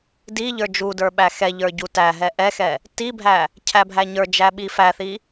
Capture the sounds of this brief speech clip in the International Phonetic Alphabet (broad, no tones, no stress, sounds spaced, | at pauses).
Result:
d i ʎ ə˞ d͡ʒ u d ə˞ ɓ æ x ɛ ʎ ə˞ ɟ u t æ ɦ ɛ ʔ ɛ x ɛ | t i bʱ æ | cʰ æ bʱ æ ɲ ə˞ d͡ʒ æ ɓ i f æ θ i